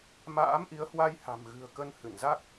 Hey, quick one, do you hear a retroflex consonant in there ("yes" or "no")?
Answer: no